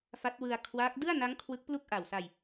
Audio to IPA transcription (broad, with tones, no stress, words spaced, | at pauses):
fa˦˥t̚wɯ˧a̯ kʰwaː˦˥k̚ dɯ˥˩a̯na˦˥ŋ kʰwɯ˦˥k̚plu˥˩k̚ʔa˨˩wsa˧j